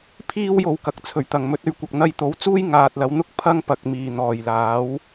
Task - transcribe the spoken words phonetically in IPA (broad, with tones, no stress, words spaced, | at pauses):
pʰiː˥w jo˨wkɐ˨˥k̚t͡sʰɵ˨˩ɥt̪ɐ˨˩ŋ mɵ˨˥t̚ ɵ˨ɥkʷɐ˨k̚ n̪ɐ˧jt̪o˨˥wt͡suː˥j ŋaː˨t̚lɐ˨˧wn̪ʊ˥k̚ pʰɐ˥ŋpɐ˨k̚miː˨˩ n̪ɔː˨˩jlaː˨˥w